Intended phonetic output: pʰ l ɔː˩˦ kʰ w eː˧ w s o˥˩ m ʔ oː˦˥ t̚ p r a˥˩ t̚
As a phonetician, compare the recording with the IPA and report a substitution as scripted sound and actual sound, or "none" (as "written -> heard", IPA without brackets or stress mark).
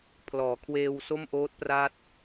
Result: none